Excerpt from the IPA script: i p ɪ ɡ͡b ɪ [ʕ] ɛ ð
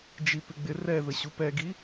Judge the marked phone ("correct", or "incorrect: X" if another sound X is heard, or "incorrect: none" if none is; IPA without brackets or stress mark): incorrect: r